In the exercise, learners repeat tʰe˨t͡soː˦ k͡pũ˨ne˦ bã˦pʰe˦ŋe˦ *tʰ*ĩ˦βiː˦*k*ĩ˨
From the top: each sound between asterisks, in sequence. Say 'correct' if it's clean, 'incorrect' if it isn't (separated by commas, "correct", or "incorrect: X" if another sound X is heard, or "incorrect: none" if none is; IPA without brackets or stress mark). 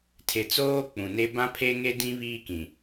incorrect: d, correct